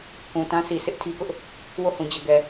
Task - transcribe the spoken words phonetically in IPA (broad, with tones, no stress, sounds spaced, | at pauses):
k ũ˨ t ã˦ sʰ i˨ sʰ ɪ˦ ʔ tʰ i˦ k ʊ˦ ʔ | w o˦˨ h ũ˨ d͡ʑ ɛ˨ ɡ ɛ˨